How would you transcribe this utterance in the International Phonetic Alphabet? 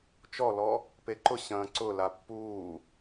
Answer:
t͡ʃɔlɔ | peǃʊɕɐ̃ː ǀʊla pːuː

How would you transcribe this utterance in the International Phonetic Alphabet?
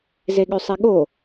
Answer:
zeɠøsˤiɠo

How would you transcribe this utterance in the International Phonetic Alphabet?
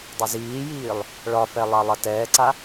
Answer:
dˤəziːjiːlˠ | ɭɒfɛ lˠalˠɐtɛːǀa

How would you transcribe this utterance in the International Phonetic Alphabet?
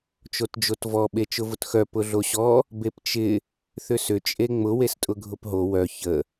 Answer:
t͡ʃotd͡ʒotvɔ ɓet͡ʃʊvʊtxœ pʊɮoɕɔ | bept͡ʃɪ | θʏsʏ t͡ʃʼeŋ͡mʊ westʼʊɡʱʊpɦo wœ çə

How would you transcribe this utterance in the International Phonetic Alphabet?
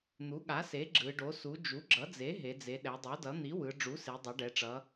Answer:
n̪u˩˥ɠa˩˥se˩˥ ɡ͡ǁɯ˩˧ɖo˩˥su˩˥ d͡ʒu˩˥ɡ͡ǁʌ˩˥d͡ze˩˥ ɦe˩˧d͡ze˩˧ ɗɛ˩˧dˤo˩˥dʌ˩˥ n̪i˩˥wɯ˩˧ ɖ͡ʐu˩˥se˩˧dˤʌ˩˧ ɖɛ˩˧ʈ͡ʂʌ˩˧

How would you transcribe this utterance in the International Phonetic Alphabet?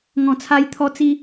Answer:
ŋɔ̃˨˩t͡sʰa˧jt̪ʰɔ˧ t͡si˧

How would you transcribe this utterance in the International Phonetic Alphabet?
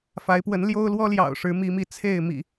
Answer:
fa˨˦ɪ̯pwə˨˦n ljo˦ʊ̯lwɔ˦ljɑ̰˨˩ʊ̯ ʂɻ̩˨˦mi˨˦mi˨˦ t͡sʰe˥˨ɪ̯mḭ˨˩

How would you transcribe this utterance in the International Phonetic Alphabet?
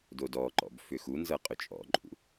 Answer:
dodɔǃɔ̰b fʏxunzɤ qʼʏt͡ʃʼɔ̰ǃʼṵ

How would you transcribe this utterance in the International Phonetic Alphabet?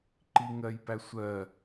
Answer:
ǃiŋɜjpæsʷɜ

